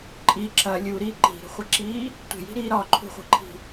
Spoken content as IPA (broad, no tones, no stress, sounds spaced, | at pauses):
ǃʼ i ǁ ɐ lʲ u ɾ iː ǃ i̤ ɾ ṳ χʷ ɘ ǁ iː | tʷ e̤ j i̤ ɾ iː ɾ ɒ ǃʰ ṳ χʷ i̤ ǃʰ i̤